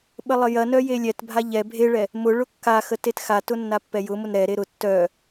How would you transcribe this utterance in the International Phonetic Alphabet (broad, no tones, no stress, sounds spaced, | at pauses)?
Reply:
ɓ ə lˠ ə j ɐ n œ j e lʲ ɛ t bʱ a ʎ ɛ bʱ e ɭ ɛ | m ʊ ɭ ʊ kː a x ə t e t x a t ʊ nː a pː ɛ j ʊ m ʊ n ɾ ɛ ɾ e ɾ ʊ tː œ